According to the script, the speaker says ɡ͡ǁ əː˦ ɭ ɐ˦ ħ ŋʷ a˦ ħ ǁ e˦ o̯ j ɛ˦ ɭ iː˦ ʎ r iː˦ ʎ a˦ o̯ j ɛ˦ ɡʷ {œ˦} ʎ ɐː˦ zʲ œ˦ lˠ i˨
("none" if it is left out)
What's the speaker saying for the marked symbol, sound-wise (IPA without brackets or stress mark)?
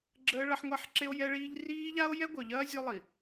œ˨